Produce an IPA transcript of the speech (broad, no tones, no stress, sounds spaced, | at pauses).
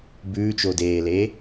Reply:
b ʉː t͡ʃ o d eː l eː